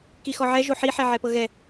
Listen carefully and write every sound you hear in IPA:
k i x ɔ ʕ ɛ ʒ o ħ i ħ ɛ ʕ ɛ p ɤ ɣ ɛ

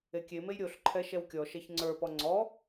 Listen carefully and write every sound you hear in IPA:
e kʲ e m e j ɾʲ o ɬ ǃʰ ɛ ʃ ɛ w kʲ ɔ ʃ ɛ ç ŋ͡ǀ ə˞ p ɔ ŋ͡ǀ ɔ

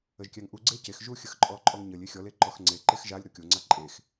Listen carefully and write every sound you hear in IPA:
ə ʒ kʲ æ ŋ ʔ u ɡ͡ǀ e c e x ʒ u xʲ ə x ǃʼ ɔ ǃʼ ɔ ŋ ɲ ə lʲ e xʲ ɔ l e ǃ ɔ x ŋ͡ǀ e ǃ e x ʒ a lʲ ɾ o kʲ o ŋ͡ǀ a ǃʼ e x

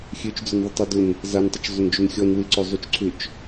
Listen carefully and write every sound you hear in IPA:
xʲ ø t͡ʃ d͡z œ n ðˤ ʏ tˤ ɐ d ʊ n | z a n tˤ ʏ t͡ʃ zˤ ʏ n d͡ʒ ʏ n xʲ ɔ n w ɪ ǀ ø zˤ y t͡ʃ ǀʰ ʏ t͡ʃ

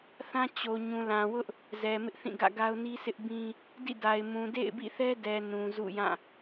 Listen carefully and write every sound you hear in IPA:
θ ã˦ t͡ɕ o˨ ɲ ũ˨ l ã˨ w ʊ˦ ʔ | z ɛ˨ m ɪ˦ ʔ θ ĩ˦˨ ɡ ä̰˦˨ ɡ a˦ ʊ̯ n i˦ sʰ ɪ˦ ʔ b ĩ˦ | d ḭ˦˨ d a˨ ɪ̯ m ũ˨ d ḛ˦˨ ɪ̯ b ḭ˦˨ θ ɛ˦ d ɛ˨ n ũ˨ z ṵ˦˨ j ã˦˨

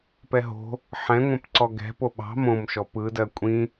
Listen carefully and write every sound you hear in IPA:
p ɛ ɦ o̤ | ħ ɛ̃ ŋʷ ɛ̃ p ǀ ɔ ɡ ɛ̤ p o ɓ ɑ̤ m õ m ʃ ɔ p ɯ d ɜ kʷʼ ĩ

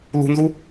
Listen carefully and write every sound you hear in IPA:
l ṳ n z u

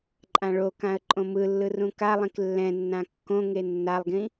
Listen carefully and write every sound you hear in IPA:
ǃʼ ã ɭ o k ã ə̯ ǃʼ õ m ɯ lː ɯ r ũ k a lˠ ĩ k lː ɛ̃ nː ã kː õ ŋ e nː a lˠ ɡ ĩ

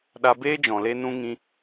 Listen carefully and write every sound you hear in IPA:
ɗ a˧ b eː˦ d͡ʒ ɔ̃˨ l e˧ n ũ˧ ŋ ĩ˧

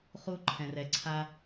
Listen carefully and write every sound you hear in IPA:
χ u˧ ǃʰ ɛ̃˩ r ɛ˩ ǀʰ a˧

